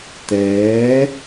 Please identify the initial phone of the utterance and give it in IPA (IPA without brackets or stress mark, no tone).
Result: t̪